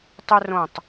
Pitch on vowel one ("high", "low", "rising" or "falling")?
high